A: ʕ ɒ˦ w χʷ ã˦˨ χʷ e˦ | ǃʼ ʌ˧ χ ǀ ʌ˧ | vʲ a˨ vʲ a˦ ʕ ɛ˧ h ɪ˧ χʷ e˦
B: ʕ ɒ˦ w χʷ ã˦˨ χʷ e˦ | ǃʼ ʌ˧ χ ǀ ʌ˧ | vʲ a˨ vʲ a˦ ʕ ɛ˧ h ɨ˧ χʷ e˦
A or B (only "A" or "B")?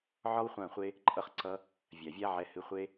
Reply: B